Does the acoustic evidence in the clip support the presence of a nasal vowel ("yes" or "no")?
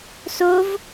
no